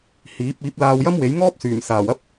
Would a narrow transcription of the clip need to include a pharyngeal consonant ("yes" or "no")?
no